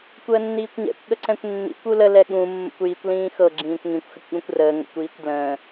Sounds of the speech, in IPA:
kʷ əː nː iː kʷ ɲ ɛ̰ kʷ ɠ ə ǀ ɛ̃ kʷ nː ḭ kʷ u l ə l ɛ ɠ ũ mː ə̰ kʷ j i kʷ l ĩː x ɤ ɡ͡ǁ ĩː kʷ ŋ ĩ kʷ x ə kʷ ɠ ũ kʷ r əː ŋ ə̰ kʷ iː kʷ d l ə̃ː

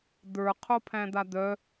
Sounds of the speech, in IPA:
d̪ ə˞ qʰ o pʰ æ̃ d̪ a d̪ œ

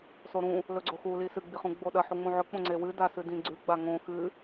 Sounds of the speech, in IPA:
s o ɾ ũ | l ɵ ɡ͡ǀ o x u l i s ɨ ɡ͡b i χ ũ ɡ͡b o ɗ ɐ ħ u ŋ͡m ũ ʕ ɵ k͡p õ ŋ͡ǀ e w ɨ d a s ɨ d ĩ ɡ͡ǀ ʉ ɡ͡b a ŋ õ x ɨ

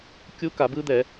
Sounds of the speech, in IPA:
kʲ u˦˥ k a˨˩˦ b ɯ˦˥ d̪ ɛ˨˩˦

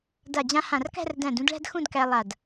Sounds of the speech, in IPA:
d a˧˩ d͡ʑ ã˧ h ã˧˩ r k æ̤˥˧ r d æ̃˧˩ d ũ˥˧ d ɭ æ̤˥ d x ũ˥˧ d k æ˧ lˠ a˧˩ d

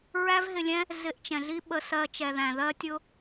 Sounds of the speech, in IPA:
ɹ æ˦ v ɦ ɪ˧ lʲ ɛ̃˦ | z ɪ˧ ʔ t͡ʃ ɛ̃˨ ɮ i˦ ɓ ə˧ s ɜ˧ t͡ʃ ɛ˨ ð æ̃˨ ð ɜ˦ tʲ ʊ˦

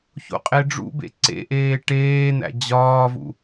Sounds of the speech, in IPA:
ç o̰ qʼ e ɖ͡ʐ ṵ b ḛ ǀ ḛ ʔ eː ʈ eː n̪ æ̰ d͡ʑ ɒː v ṵ

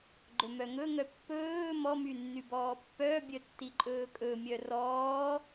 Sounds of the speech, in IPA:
ɡ͡ǃ ɵ m œ ŋ ɵ ŋ œ pː ɵː m ɔ m y nː y b ɔː pː œ bʲ œ tː i ǃʼ ɵː kʼ ɵ mʲ œ r ɔː

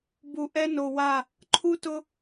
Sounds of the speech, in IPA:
b u˨ ʔ ɛ˦ n o˨ w a˦˨ | ǃʰ u˦ t ʊ˦

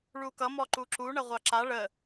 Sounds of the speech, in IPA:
ɭ u k ʌ m ɔ ǃ u ǁ u ɳ ə ʁʷ ɑ ǁ a ɭ ə

